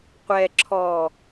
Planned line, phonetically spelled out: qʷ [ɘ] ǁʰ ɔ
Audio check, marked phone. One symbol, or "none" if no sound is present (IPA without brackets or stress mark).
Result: ɛ